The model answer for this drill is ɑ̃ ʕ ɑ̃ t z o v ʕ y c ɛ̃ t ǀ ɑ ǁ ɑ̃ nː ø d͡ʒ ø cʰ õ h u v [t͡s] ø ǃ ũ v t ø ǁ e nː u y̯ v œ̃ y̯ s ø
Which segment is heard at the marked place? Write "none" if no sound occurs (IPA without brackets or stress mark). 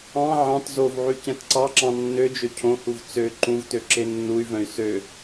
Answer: t͡s